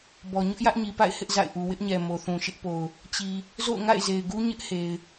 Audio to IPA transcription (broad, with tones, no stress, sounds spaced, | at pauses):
b ɔ˨ ɲ ʊ˦ ʔ j ä˦ ʔ ɲ i˨ p a̰˦˨ ɪ̯ h ɪ˦ ʔ z a̰˦˨ ɪ̯ ʔ u˨ w ɪ˦ ʔ ɲ ɛ˨ m o˨ θ ũ˨ ʃ ɪ˦ ʔ p o˨ ʊ̯ | t͡ɕ i˨ | z o̰˦˨ ʊ̯ ŋ a̰˦˨ ɪ̯ z e˨ ɪ̯ ɡ u˦ ɲ ɪ˦ ʔ h e˨ ɪ̯